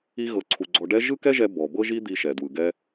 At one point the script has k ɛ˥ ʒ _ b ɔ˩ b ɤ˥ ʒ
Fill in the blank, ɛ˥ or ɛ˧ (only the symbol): ɛ˧